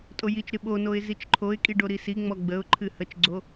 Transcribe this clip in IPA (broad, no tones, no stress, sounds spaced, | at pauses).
tʼ o j i t͡ʃ ɾ ɨ ɓ o n o ɪ̯ z i t͡ʃ ǃʰ o ɪ̯ kʼ i ɖ o ɾ i s i ŋ͡m ɔ ɡ͡b ə ʊ̯ ǃʰ ɨ h ə t͡ʃ ɡ͡ǀ o